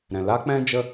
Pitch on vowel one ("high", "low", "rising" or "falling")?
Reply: low